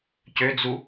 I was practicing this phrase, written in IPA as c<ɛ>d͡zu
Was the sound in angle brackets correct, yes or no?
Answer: no